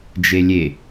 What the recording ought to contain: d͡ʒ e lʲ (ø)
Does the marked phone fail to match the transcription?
yes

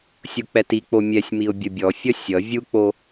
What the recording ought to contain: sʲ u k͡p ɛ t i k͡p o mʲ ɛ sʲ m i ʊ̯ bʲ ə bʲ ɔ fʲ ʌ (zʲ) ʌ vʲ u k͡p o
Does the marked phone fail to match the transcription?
yes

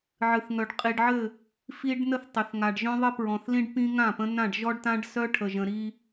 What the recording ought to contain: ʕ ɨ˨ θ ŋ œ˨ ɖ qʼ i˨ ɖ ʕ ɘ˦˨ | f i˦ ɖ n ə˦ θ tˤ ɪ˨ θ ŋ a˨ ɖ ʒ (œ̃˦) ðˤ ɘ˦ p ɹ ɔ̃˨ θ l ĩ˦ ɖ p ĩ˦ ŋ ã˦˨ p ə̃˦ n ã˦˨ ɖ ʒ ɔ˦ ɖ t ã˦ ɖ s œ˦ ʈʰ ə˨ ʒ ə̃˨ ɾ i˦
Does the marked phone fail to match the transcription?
no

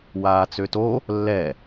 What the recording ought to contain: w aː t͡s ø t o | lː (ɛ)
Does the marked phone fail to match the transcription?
no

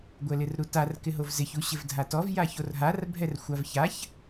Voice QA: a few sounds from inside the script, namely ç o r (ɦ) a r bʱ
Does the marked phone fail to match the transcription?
no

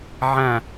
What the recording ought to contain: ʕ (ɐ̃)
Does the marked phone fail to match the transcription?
yes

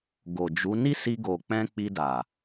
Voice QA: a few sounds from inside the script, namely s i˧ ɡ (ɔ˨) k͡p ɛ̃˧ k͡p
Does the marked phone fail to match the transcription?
yes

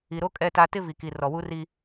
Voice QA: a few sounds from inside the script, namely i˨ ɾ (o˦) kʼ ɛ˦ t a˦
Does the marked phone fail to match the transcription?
no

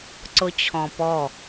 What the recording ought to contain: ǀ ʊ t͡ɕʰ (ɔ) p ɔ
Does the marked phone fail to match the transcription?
yes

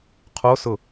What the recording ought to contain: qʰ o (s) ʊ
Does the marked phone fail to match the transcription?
no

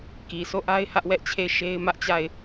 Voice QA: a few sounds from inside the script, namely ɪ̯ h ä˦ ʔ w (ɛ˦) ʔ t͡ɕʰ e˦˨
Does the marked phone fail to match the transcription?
no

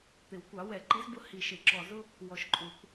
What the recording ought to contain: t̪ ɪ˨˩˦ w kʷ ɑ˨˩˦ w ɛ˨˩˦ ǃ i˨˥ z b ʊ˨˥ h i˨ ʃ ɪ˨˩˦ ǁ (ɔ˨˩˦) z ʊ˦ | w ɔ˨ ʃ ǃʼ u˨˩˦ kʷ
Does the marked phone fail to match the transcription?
yes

